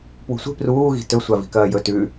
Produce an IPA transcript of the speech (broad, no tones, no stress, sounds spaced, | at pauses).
p w ṳ sʷ i̤ p r uː ɣ i̤ t ɵ sʷ a v i̤ k ɐː j ɵ t ʉ